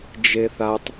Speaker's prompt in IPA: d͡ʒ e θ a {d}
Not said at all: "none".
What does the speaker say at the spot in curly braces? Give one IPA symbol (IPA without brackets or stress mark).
tˤ